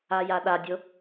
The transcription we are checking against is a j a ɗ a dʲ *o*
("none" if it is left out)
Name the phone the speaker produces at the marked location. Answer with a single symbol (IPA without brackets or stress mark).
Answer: o